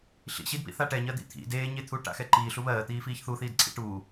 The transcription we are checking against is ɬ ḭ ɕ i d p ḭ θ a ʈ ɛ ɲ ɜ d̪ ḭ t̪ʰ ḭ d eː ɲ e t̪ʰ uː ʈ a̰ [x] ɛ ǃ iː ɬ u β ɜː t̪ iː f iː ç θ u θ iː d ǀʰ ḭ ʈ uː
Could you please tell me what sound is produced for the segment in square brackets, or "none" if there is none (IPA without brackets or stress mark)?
x